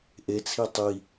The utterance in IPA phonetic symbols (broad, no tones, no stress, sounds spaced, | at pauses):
ʔ e t͡sʰ i tˤ i